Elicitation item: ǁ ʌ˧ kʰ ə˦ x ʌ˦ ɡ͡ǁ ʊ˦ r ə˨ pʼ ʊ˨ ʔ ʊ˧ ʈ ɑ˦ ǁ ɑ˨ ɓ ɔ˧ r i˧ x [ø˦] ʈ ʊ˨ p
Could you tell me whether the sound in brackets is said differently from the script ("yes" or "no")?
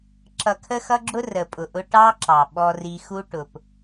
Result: yes